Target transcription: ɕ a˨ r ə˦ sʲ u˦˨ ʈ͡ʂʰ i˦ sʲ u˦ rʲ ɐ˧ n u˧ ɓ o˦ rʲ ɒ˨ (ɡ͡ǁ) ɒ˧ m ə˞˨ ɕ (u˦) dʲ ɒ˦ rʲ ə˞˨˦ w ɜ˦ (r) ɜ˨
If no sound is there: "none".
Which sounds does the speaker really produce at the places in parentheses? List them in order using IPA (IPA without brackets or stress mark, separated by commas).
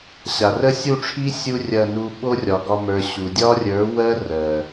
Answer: ɡ, u˨, r